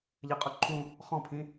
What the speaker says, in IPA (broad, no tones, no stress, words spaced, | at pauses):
ʎɜqʼʊǃʰũ | χɔ̃pʰĩ